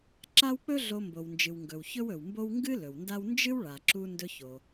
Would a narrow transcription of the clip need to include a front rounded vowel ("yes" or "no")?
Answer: no